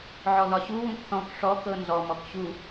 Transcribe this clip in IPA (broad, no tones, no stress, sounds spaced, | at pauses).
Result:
ʕ ɔ ð ɒ ɕ u w ũ k θ ɔ̃ k ʂ ɔ k ɤ n z ɔ m ɔ k ɕ u